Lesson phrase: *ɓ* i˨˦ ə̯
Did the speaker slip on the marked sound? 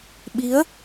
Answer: no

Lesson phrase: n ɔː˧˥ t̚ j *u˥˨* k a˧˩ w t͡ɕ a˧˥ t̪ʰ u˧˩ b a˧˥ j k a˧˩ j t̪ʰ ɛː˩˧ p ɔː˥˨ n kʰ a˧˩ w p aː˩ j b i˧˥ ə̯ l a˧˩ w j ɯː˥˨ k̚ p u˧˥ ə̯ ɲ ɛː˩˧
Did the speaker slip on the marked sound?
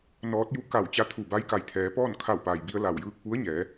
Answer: no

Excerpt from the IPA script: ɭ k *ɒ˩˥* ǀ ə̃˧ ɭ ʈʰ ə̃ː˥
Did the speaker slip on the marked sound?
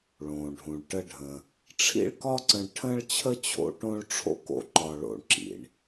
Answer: yes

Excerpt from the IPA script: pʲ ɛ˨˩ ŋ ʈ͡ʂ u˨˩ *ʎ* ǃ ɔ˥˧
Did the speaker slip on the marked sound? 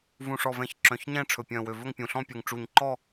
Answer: yes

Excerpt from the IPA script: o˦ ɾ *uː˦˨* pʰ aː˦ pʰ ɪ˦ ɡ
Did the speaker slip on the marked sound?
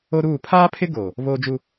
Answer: no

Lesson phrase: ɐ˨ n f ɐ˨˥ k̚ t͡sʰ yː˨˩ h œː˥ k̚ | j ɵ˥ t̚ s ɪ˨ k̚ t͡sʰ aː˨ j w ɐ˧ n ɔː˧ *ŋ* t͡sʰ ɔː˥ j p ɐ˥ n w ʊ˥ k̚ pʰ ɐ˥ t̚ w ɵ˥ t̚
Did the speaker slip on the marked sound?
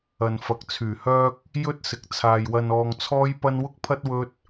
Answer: no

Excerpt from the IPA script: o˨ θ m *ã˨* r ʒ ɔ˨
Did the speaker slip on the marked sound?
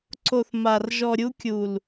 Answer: yes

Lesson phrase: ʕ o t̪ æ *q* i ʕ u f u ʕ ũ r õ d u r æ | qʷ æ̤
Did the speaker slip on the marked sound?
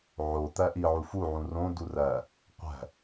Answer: yes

